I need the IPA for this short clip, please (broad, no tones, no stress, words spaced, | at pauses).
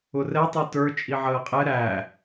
ʊrɛ tˤɛtə˞ t͡ʃʼiʕəːqʼɛ ɾæ